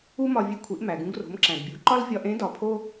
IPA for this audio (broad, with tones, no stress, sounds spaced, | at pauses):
u˥ m ɒ˧ vʲ e˧ kʷʰ i˩˧ ʔ m æ˩ ɡ ũ˧ ɡ r o̤˩˧ m ǁ æ̃˩ d bʲ u˩˧ ǃ ɒ˥ l vʲ ɒ˧ ʔ ẽ˧˥ d ɒ˩˧ pʰ o˥